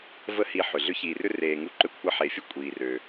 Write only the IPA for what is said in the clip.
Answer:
v ə˥ h i˧ ħ ʏ˩ ɮ ʏ˥ ç iː˩ r ʏ˥ r eː˩ ŋ u˧ ǃ ʏ˧ kʷʰ ɐ˧ ħ eː˩ fʲ ə˥ kʷʼ iː˩ r ø˩

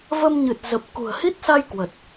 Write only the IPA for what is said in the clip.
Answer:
v ə˧ m ɲ ɨ˨˩ t̚ z ə˨˩ p̚ k ṳ˨˩ ə̯ h i˦˥ t̚ s a˧ j k w ə˨˩ t̚

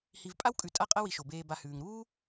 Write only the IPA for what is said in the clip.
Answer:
h i˨ v pʼ a˦ w kʼ ʉ˨ tʼ a˦ qʼ ɐ˦ w i˨ ʃ o˩ b eː˨ b a˨ h ʉː˩ ŋ ɾ uː˥

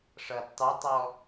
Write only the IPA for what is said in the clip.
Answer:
ʂ ʌ d tˤ u tˤ ɔ

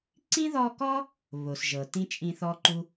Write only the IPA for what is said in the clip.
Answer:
ǀ ĩ˥ ð ɔ˦ k ɔ˥ | β o˩ s ʒ ɤ˩ t ĩ˥ t͡ʃʼ ĩ˦ θ ɔ˥ ǃ u˥

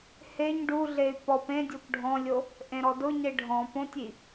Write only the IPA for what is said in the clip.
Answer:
h e ɲ ɖ u ɮ e y̯ p ɔ p ẽ dʲ o p ɖʱ ɔ̃ lʲ o | ʔ ẽ ɾ ɔ d ʊ ɲ e ɖʱ ɔ̃ p õ tʲ i

